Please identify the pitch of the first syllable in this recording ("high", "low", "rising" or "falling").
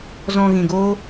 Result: low